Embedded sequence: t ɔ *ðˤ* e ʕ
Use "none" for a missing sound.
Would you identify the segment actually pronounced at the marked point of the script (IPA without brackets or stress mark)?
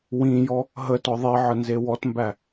ðˤ